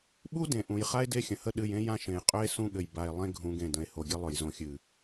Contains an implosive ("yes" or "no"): yes